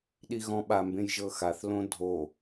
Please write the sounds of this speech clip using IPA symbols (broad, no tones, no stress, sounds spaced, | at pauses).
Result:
ɗ i ɣ ɔ̃ ɓ a m b ẽ j ʒ ɤ x a θ l õ dʱ o